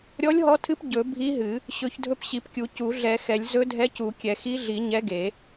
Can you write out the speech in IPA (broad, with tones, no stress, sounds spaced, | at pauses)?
ɾʲ ɔ˧˥ lʲ ɦ ɔ˧˥ tʰ ɨ˧˥ p ɟ ɵ˨˩˦ bʱ i˧˥ ɦ ɨ˨˩˦ | ɕ ɵ˨˩˦ ç dʱ ɵ˧˥ p ɕ i˨˩˦ p kʲ u˨˩˦ c u˨˩˦ ɮ ɛ˨˩˦ x ɛ˨˩˦ lʲ z ɵ˧˥ dʱ ɛ˧˥ c u˨˩˦ kʲ ɛ˨˩˦ x i˧˥ ɮ i˨˩˦ ɲ ɛ˧˥ ɡ e˨˩˦